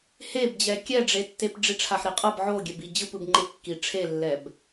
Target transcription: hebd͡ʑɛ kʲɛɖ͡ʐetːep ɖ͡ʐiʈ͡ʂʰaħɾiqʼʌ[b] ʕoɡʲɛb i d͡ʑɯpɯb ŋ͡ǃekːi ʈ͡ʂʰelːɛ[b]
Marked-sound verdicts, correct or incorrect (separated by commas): correct, correct